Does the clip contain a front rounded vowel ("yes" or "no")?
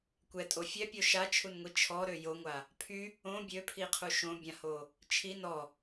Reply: yes